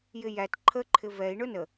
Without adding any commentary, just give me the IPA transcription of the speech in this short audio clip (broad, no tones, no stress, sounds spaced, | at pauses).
j ɪ j æ t ǃʰ ə ǃʰ ɪ v ɛ i̯ ɳ ʊ n ə